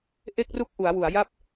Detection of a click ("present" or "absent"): absent